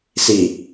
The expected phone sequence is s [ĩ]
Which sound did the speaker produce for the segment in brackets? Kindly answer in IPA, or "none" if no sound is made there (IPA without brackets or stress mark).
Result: i